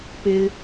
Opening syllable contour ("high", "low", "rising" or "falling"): high